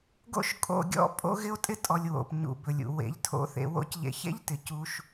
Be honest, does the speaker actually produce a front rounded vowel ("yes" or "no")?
no